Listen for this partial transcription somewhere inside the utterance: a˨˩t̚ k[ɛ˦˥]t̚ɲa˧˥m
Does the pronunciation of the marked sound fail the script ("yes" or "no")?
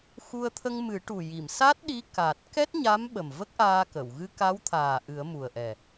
no